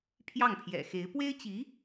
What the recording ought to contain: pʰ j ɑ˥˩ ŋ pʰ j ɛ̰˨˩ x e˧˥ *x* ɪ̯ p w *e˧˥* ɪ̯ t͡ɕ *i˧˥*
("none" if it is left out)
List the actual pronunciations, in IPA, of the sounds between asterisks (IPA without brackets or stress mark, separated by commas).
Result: none, e˥, i˧˥